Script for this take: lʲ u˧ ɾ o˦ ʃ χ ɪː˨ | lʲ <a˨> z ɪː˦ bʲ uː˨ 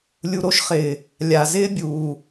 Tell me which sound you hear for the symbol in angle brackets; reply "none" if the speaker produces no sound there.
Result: a˨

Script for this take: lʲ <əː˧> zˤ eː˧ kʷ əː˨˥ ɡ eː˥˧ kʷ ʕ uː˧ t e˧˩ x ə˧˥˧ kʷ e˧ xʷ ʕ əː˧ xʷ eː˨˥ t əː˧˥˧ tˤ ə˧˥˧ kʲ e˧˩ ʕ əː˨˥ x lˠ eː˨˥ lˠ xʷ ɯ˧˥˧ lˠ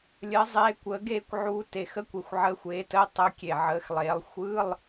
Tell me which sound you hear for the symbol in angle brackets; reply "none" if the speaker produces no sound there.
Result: əː˨˥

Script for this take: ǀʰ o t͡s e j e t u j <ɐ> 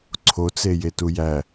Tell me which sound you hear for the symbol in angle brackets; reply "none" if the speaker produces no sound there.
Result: æ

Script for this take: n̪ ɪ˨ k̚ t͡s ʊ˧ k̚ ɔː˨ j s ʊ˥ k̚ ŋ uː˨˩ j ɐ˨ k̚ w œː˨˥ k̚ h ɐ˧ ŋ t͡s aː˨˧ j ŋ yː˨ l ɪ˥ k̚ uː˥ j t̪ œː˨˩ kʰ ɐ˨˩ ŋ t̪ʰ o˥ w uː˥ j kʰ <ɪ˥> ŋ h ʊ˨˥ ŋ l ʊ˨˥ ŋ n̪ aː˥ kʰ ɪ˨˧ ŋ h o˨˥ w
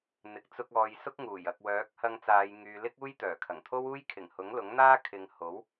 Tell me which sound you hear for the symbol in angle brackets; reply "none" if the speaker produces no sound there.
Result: ɪ˨˩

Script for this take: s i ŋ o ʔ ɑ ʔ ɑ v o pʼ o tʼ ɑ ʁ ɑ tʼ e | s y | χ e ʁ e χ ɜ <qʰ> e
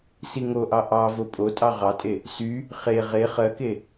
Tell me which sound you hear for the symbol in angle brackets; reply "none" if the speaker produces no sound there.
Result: k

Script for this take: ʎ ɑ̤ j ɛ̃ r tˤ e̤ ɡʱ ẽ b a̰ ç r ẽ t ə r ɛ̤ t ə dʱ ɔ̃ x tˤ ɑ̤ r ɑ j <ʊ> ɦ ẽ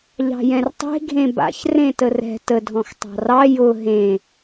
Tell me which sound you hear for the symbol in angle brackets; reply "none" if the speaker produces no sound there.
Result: ʊ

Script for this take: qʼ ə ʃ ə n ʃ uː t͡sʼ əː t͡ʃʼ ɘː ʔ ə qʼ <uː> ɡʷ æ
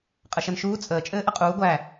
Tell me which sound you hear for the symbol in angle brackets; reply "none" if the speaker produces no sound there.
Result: uː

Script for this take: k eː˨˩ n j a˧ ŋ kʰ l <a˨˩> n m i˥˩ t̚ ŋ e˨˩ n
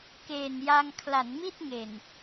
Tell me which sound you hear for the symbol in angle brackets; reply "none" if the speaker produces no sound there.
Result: a˩˦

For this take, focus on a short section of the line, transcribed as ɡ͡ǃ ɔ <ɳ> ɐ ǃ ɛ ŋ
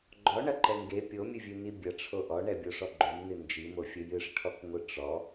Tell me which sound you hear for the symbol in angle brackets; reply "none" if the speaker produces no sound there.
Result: ɳ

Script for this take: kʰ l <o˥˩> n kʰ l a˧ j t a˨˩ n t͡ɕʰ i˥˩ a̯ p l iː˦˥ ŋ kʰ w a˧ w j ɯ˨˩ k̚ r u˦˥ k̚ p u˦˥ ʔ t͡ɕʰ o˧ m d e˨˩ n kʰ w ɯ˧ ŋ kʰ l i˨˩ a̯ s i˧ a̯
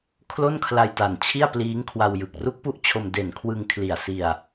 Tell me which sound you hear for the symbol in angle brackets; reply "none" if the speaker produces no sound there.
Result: o˥˩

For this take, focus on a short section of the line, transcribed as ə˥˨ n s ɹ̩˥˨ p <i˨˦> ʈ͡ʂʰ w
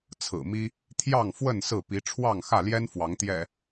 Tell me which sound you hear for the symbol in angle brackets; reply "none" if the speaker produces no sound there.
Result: i˨˦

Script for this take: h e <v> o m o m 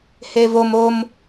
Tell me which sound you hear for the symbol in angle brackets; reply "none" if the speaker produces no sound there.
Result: v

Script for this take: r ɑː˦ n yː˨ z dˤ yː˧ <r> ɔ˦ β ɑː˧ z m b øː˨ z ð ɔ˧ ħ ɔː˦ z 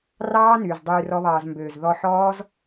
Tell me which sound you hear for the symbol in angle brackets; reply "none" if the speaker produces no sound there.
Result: r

